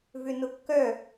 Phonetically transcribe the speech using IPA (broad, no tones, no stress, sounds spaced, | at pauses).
v ʏ n ʊ kː œ